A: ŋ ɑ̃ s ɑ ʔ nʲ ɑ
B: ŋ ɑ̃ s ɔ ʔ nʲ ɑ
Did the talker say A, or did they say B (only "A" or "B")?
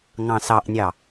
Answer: A